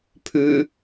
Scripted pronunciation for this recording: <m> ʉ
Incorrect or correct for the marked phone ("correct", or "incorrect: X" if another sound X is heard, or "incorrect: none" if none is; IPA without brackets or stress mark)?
incorrect: pʰ